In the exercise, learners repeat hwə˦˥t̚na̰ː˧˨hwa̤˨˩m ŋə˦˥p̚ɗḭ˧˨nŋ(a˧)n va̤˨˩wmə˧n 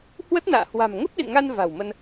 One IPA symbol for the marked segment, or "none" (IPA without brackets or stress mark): a˧